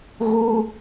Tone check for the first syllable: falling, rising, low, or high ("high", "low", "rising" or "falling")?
high